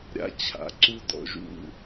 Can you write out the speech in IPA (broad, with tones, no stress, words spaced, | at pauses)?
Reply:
ɾʲa̰˧ t͡ɕʰa̰˩˧ ǀu˧dɔ̰˩˧˩ʒṵ˧˩